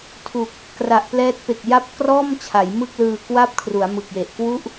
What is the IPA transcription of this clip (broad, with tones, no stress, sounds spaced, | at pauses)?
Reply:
tʰ u˨˩ k̚ | k r a˨˩ ʔ p l ɛː˦˥ t̚ p e˨˩ k̚ j a˦˥ p̚ k r ɔː˥˩ m t͡ɕʰ a˩˦ j m ɯ˥˩ k̚ l ɯː˧ k w a˥˩ p̚ kʰ r u˩˦ a̯ m ɯ˨˩ k̚ j e˨˩ ʔ k w u˥˩ ʔ